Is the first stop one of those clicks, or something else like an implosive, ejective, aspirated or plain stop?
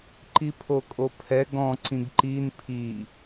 click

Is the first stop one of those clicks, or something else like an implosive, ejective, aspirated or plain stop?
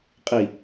ejective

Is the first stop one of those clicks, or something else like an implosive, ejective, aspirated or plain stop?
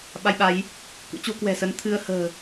implosive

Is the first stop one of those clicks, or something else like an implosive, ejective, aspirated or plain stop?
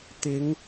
plain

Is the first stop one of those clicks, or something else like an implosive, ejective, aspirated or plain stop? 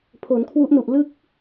aspirated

